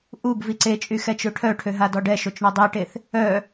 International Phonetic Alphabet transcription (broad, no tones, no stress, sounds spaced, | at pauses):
ʔ u ɡ v i ǀ e t͡ʃʼ y x ɛ t͡ʃ ø ʈʰ œ ʈʰ ø ɦ a d ɔ ɖ ɛ ʃ o t͡ʃ ɳ ɔ dˤ i ʈ e θ | œ